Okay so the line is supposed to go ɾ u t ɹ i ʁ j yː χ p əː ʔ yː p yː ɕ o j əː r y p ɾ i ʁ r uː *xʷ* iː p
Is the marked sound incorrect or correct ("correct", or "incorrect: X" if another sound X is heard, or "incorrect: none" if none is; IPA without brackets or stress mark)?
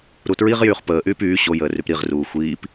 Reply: correct